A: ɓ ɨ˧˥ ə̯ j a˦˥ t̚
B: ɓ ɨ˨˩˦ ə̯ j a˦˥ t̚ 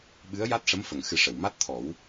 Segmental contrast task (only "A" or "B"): A